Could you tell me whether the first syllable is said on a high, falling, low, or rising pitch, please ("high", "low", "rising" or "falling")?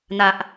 low